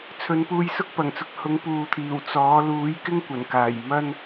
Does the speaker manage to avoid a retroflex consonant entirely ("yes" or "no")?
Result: yes